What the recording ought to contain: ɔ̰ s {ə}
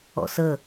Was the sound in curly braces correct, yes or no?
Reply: yes